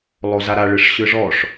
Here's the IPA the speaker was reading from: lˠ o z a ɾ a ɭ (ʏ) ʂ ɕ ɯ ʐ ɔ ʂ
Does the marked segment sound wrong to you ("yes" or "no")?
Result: yes